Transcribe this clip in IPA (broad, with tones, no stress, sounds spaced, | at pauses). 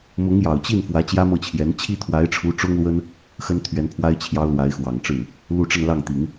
m ʊ˧˥ ŋ j ɑ˨˩ ʊ̯ t͡ɕ i˥˩ n f w ä˧˥ t͡ɕ j ä˥ m ɤ˥˩ t͡ɕʰ j ɛ˧˥ n t͡ɕʰ i˥ t̪ʰ w a˧˥ ɪ̯ ʈ͡ʂʰ u˧˥ ʈ͡ʂ ʊ˥ ŋ l w ə˥ n | x ə˥ n t̪ʰ ɥ ɛ˧˥ n pʰ w a˥ ɪ̯ t͡ɕʰ j ɑ˥ ʊ̯ l w a˧˥ ɪ̯ x w ɑ˨˩ ŋ ʈ͡ʂ ɻ̩˥˩ | l u˥˧ ʈ͡ʂ ə˥˧ n l ɑ˥˩ ŋ t̪ i˨˩˦ ŋ